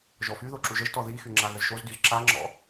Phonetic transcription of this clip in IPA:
ʒ ɔ f y ð o ǁ u ʒ ə ʒ t ɔ ð i x y ŋ͡ǁ a ɣ ə z ʃ o z d y z ǁ a ŋ͡ǁ ɔ̰

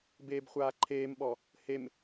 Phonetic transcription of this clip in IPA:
b eː b χʷ aː ǃʰ eː m ɓ ɔ | h e m

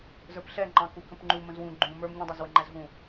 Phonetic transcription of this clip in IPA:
z ə˞ p ɬ ɛ ŋ͡ǃ ɑ̃ k u k ə̃ p ŋ͡ǃ u m ə̃ z w ũ ɡ͡ǃ ũ m ə˞ m ɲ ũ dˤ æ z w ə ŋ͡ǃ æ z ɦ ũ

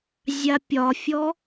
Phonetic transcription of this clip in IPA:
zʲ a pʲ ɒ fʲ ɔ

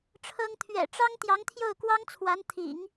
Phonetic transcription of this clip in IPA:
ʈ͡ʂʰ ɤ˥ ŋ t̪ʰ ɥ ɛ̰˨˩ ʈ͡ʂ ɑ˥ ŋ t̪ j ɑ˧˥ ŋ t̪ʰ j o˥˩ ʊ̯ k w ɑ˥ ŋ t͡sʰ w a˧˥ n t̪ʰ ḭ˨˩˦ ŋ

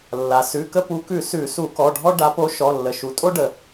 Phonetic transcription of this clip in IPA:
lː a˩ s ʉ˩˧˩ k ə˦ p u˨˥ k ʉ˨˩˦ s ʉ˨˩˦ s u˨˩˦ k ɔ˩˧˩ ɖʱ ɔ˦ ɖ a˨˥ p o˨˥ ʃ ɔ˩˧˩ lː ə˩ ʃ u˩ tʼ o˦ ɖ ə˩

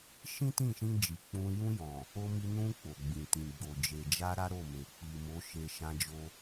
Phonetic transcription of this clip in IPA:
ʃ ĩ˦ t ĩ˦˨ ʃ ĩ˧ d͡ʒ i˨ k͡p ũ˧ j ũ˧ j ɔ̃˨ | o˧ m i˧ n ũ˧ k͡p o˨ ɡ͡b ĩ˨ t ĩ˨ ɡ͡b o˨ d͡ʒ e˨ d͡ʒ a˧ ɾ a˦ ɾ o˦˨ m e˨ k͡p i˨ m o˨˦ ʃ e˧ ʃ ã˧ d͡ʒ o˧

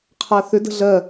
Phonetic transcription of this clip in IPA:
qʰ a θ ʏ d ə̤ ɮ ɜ

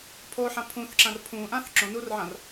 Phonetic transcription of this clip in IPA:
pʰ o ħ ã pʰ ũ θ ǁ ã r pʰ ũ ʔ ã θ ǁ õ n u r ʕ ã r

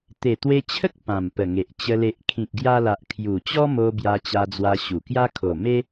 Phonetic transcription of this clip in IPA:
t̪ e˨˩ t̪ w e˧ t͡ɕʰ ə˦ k̚ p ã˨˩ m p ə˨˩ ŋ e˨ ʔ t͡ɕ ə˧ l e˨ ʔ kʰ ĩ˨ k̚ ɡ j a˧ l a˨ ʔ kʰ j u˨˩ t͡ɕ ɔ˦ m o˧ b j a˧ t͡ɕ a˧ d͡z w a˧ ɕ u˨˩ k j a˦ kʰ o˨˩ m e˦

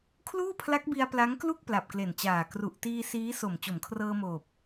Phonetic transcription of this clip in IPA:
kʰ l uː˥˩ pʰ l a˦˥ k̚ b i˧ a̯ p l a˦˥ ŋ k l u˥˩ k̚ p l a˨˩ p̚ k l e˨˩ n t͡ɕ aː˨˩ k r u˨˩ ʔ t iː˧ s iː˦˥ s o˨˩ m t͡ɕ o˩˦ m kʰ r ɤː˧ m oː˨˩ p̚

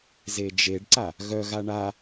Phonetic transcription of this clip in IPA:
z e d͡ʒ e ɖ ǀ a | ɣ œ ɣ a ɳ a

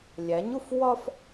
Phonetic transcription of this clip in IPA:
lʲ æ˨˦ ɲ u˦ f w ɒ˦ f

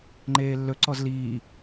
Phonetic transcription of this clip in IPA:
ŋ͡ǃ eː lː ɵ ǀ ɔ z l iː

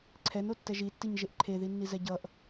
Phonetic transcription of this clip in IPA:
ǀʰ ɛ n o tː ɛ ʒ i tː i ɲ ʒ e ʔ ǃʰ e ð i nː i z ɛ ɟ ʌ ʔ

